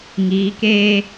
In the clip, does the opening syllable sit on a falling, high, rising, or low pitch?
rising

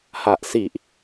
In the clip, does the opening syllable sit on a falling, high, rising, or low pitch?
low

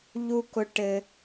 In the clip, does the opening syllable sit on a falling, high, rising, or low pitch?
high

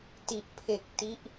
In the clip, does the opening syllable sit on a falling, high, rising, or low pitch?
low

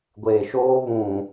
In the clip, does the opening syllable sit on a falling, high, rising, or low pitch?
low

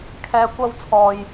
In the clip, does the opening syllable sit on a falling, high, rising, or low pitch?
low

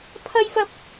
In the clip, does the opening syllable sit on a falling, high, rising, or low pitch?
high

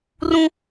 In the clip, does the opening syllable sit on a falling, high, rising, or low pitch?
high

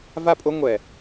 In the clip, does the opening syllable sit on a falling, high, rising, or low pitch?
falling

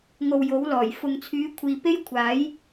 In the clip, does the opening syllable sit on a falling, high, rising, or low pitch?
low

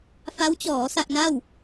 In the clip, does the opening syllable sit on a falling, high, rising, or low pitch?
rising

